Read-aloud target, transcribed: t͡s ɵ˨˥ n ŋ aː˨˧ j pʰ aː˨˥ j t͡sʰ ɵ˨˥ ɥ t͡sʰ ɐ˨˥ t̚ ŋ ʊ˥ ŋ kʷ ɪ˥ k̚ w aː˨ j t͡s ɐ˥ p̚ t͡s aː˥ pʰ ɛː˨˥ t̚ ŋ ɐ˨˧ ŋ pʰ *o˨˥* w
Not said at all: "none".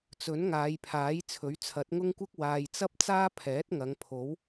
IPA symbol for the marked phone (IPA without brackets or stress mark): o˨˥